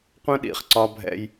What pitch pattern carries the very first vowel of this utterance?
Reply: high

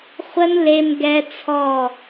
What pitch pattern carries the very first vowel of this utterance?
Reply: high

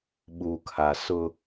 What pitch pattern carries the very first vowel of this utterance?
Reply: low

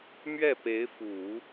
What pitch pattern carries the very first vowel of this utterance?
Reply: falling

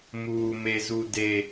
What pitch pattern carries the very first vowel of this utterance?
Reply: low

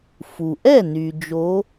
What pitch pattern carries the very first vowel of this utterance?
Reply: low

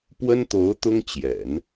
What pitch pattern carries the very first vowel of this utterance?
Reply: high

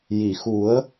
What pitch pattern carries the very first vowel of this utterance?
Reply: low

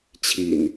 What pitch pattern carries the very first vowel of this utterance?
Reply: low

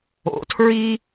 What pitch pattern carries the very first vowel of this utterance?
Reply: rising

